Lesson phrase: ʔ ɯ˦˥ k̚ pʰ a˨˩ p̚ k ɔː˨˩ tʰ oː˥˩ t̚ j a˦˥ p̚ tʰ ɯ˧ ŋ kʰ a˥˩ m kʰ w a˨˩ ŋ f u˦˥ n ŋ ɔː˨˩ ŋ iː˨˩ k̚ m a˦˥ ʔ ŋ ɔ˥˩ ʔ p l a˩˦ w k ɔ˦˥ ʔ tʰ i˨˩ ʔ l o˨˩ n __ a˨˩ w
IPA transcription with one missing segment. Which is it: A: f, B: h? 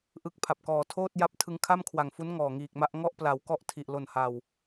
B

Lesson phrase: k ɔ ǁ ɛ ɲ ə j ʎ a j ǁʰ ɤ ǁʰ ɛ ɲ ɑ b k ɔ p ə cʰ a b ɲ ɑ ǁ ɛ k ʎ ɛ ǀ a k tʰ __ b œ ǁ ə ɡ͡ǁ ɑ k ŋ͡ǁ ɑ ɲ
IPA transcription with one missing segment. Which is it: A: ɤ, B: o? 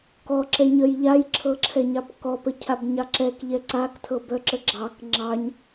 A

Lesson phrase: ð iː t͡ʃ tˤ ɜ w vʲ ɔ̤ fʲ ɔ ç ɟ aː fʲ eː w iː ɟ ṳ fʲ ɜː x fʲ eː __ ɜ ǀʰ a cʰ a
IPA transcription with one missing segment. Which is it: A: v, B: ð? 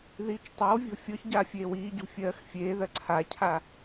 B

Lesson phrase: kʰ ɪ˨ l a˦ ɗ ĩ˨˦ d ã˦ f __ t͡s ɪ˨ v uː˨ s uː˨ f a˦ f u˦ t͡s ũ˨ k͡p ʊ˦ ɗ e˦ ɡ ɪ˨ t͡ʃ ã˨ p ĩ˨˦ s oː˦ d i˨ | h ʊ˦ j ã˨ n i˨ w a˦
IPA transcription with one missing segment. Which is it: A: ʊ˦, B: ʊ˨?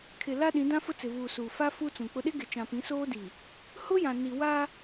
A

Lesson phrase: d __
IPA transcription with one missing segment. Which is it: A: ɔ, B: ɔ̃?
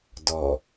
A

